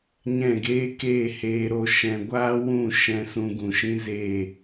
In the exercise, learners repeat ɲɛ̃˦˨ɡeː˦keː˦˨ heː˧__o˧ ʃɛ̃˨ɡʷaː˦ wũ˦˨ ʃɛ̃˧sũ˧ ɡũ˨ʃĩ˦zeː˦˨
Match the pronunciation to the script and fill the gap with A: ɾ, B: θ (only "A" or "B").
A